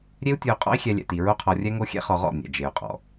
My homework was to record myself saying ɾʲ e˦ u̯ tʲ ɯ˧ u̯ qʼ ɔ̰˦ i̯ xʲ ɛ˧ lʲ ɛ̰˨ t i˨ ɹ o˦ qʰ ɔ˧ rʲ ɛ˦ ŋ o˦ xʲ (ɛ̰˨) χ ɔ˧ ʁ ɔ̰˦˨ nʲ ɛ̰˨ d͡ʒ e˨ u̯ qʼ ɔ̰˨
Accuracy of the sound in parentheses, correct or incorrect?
incorrect